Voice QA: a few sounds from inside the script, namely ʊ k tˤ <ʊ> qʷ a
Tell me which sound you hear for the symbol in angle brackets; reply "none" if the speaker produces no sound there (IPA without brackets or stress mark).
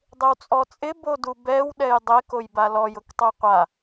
u